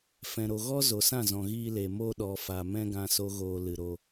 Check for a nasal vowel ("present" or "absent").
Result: present